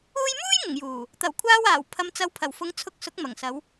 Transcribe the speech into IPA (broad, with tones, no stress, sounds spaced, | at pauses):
uː˧ j m uː˥ j ŋ ʊ˨˩ ŋ j uː˨˩ | t̪ ɐ˨˩ w kʷʰ aː˧ w aː˨˩ w pʰ ɐ˨˧ m t͡s ɐ˨˧ w pʰ ɐ˨˩ w f ʊ˨˧ ŋ t͡sʰ ʊ˧ k̚ s ʊ˨˥ k̚ m ɐ˨˩ ŋ s ɐ˨˧ w